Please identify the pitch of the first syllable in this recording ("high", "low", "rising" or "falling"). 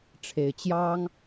low